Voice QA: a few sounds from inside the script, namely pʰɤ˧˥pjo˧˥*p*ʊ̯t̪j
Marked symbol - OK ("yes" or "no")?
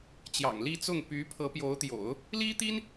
no